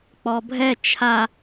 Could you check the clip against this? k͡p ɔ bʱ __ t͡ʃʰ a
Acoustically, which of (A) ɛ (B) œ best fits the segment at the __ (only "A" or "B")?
A